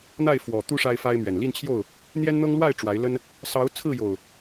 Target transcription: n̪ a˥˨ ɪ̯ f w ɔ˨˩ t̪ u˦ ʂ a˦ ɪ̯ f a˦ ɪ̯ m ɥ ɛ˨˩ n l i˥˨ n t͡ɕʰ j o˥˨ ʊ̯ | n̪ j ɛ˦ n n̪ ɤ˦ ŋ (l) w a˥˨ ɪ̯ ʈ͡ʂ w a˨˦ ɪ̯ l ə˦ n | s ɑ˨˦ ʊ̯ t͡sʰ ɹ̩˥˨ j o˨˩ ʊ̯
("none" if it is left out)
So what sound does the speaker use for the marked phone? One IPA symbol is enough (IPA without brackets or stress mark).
l